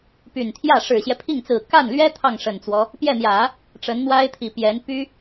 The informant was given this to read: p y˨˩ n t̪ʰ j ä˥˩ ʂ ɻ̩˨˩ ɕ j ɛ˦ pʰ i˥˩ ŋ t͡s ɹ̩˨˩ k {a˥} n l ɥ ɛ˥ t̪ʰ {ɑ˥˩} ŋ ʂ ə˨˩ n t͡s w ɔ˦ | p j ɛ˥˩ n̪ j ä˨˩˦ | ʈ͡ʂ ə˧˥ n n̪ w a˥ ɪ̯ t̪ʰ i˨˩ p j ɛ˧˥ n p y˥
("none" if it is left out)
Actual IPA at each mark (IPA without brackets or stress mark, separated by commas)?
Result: a˥˩, ɑ˥˩